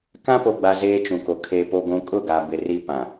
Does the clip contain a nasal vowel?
yes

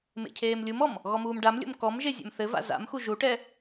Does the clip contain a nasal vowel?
no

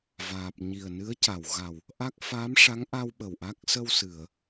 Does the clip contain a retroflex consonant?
yes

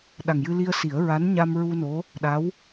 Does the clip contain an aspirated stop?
no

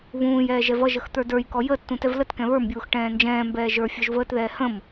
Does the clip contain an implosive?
no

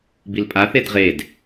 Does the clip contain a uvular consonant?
yes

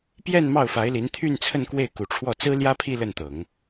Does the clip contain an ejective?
no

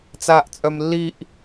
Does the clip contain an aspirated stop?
no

